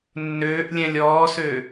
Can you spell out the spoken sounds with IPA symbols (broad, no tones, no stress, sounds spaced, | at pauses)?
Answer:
nː øː ʔ lʲ ɛ̃ lʲ ɔː s ø